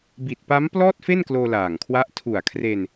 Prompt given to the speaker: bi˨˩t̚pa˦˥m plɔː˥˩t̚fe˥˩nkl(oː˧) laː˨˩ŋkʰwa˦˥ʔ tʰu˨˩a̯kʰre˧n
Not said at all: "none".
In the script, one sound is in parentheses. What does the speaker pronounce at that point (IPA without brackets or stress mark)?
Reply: oː˧